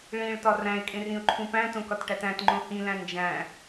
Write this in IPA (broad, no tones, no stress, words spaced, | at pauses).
ɭĩɭtɒ ræ̃ɪ̯kʼẽrĩʊ̯ǃʰũ pæ̃tõkɒtʈæt æ̃tŋ͡ǃõ hĩlæ̃ nd͡ʒæ̃